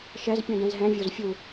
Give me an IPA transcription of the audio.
ʃ ɛ z pʲ ũ d ɛ̃ z ɦ ɛ̃ vʲ o z fʲ u

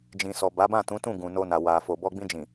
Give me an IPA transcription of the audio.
d͡ʒ ĩ˨ s ɔ˨ b a˨˦ b ã˦˨ t ũ˨˦ t ũ˦˨ ɡ ũ˨ n o˧ n a˨ w a˨ f o˨ b ɔ˧ ɡ͡b ĩ˧ d͡ʒ ĩ˨

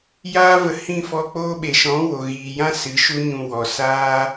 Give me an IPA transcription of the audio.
j aː˦ v ə˧ h ĩ˦˨ f ɔ˧ k͡p oː˦ ɓ e˨ ʃ ɔ̃˨˦ w o˨ ɣ iː˨ j ã˦ s ɨ˨˦ ʃ u˦ ɲ ũ˧ w ɔ˨ s aː˦

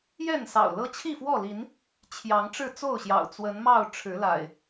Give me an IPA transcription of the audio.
j ɛ˥˨ n s ɑ̰˨˩ ʊ̯ l ɤ˦ t͡ɕʰ i˥˨ f w ɔ˥˨ l i˨˦ n | t͡ɕʰ j ɑ˨˦ ŋ ʈ͡ʂ ɻ̩˥˨ t͡s o˥˨ ʊ̯ ɕ j ɑ̰˨˩ ʊ̯ t͡s w ə˨˦ n m ɑ˥˨ ʊ̯ ʈ͡ʂʰ ɻ̩˨˦ l a̰˨˩ ɪ̯

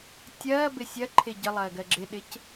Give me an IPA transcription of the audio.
tʲ ɐː b ɪ sʲ ɐ ǃʰ ɪ ɟ ə lˠ ɐː ɡ ɜ ɡ͡ǁ ɪ ɗ ɪ c

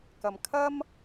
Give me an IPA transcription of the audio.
k ɐ˨ m kʰ ɐ˥ m

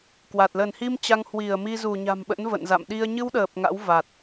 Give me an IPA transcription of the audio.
k w a˨˩ t̚ l ə˧˩ n h i˧ m t͡ɕ a˧ ŋ h w i˧˩ ə̯ m i˧ z u˧˩ ɲ a̤˨˩ m ɓ ə̰˧˥ n v ə̰˧˨ n z a̰˧˨ m ɗ i˧ ə̯ ɲ ɨ˧ w ɗ əː˨˩ p̚ ŋ a̰˧˥ w v a˨˩ t̚

